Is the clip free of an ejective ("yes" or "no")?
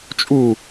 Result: no